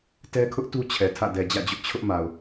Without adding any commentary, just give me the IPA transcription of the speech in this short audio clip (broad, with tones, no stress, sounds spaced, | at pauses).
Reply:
t ɛ˦ kʰ ʊ˦ ʔ t u˦ t͡ɕʰ ɛ˨ tʰ ä̰˦˨ d ɛ˨ d͡ʑ ä̰˦˨ d͡ʑ ʊ˦ ʔ t͡ɕʰ ʊ˦ ʔ m a˨ ʊ̯